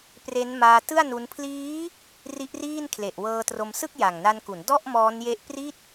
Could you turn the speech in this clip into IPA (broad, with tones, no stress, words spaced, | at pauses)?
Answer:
pre˦˥nmaː˧tɯ˥˩a̯ nu˦˥n pʰliː˦˥ | ri˦˥ʔriː˥˩nkʰle˨˩ʔ wɤː˧tro˧msɯ˥˩k̚ja˨˩ŋ na˧nku˩˦ndɔ˥˩ʔ mɔː˦˥nje˦˥ʔpri˥˩t̚